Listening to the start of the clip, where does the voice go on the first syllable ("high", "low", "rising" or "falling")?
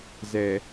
low